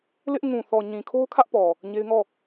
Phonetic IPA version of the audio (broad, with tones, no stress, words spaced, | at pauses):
lɪ˦ʔ ŋũ˨θɔ˨ɲĩ˨kʰo˦ʊ̯ kʰä˦ʔpɔ˨ | ɲe˦ɪ̯ŋɔ˦˨